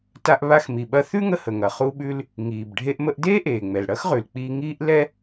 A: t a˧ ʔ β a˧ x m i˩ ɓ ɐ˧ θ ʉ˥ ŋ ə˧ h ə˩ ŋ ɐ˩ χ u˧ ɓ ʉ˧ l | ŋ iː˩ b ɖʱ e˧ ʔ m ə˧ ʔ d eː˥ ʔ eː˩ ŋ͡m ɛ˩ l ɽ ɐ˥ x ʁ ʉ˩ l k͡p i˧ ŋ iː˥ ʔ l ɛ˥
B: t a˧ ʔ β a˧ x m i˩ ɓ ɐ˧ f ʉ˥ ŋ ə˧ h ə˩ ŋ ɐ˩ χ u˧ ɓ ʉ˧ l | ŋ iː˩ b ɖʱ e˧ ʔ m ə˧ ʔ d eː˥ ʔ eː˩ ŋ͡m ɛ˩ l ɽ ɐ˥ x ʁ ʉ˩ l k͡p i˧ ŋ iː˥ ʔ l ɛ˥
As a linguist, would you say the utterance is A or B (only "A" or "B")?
A